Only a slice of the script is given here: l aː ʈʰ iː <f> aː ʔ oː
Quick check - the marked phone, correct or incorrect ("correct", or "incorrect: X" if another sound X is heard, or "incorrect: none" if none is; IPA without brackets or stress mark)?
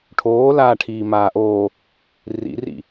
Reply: incorrect: m